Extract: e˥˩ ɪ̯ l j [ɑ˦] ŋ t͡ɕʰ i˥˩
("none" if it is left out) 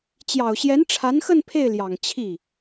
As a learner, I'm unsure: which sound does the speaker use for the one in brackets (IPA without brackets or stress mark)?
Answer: ɑ˨˩